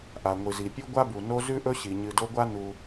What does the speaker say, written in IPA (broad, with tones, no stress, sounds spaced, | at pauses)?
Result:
ʔ a˩ ŋʷ ɨ˩ z i˩ pʲ ʉ˥ ɡʷ a˥ b u˩ n o˦ z ʉ˥ ʔ ɵ˦ ɕ i˩ ɲ ɨ˨ d o˦ ɡʷ a˥ n u˨